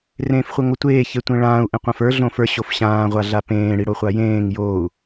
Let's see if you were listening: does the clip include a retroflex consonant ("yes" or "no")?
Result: yes